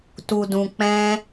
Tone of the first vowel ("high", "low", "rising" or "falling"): low